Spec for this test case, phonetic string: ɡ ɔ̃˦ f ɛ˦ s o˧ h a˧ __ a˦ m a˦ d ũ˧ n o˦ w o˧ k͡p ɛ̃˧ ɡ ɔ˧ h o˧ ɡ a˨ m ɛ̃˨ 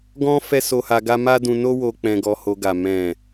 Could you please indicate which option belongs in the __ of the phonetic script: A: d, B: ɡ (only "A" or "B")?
B